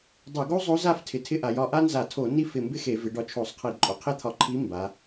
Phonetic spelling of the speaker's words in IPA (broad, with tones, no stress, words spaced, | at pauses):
dˤo˧˩˧ɡo˥ zˤo˧˥z a˧˥ftʰɪ˩˧tʰɪ˧˥ʔa˩˧j ɒ˧˩ ʔa˥nza˧˩˧tʰo˧˩˧ ni˥fɪ˧˩mbɪ˥xe˧˩˧ vɪ˩˧ɖɒ˧˩t͡ʃʰo˧˩˧sˤ qʰi˧˩˧ǃʼo˩˧qʰe˥t̪ʰɒ˧˥ ǃʰi˧˥ mba˩˧